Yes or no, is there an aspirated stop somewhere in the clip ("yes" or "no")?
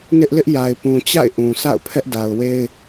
yes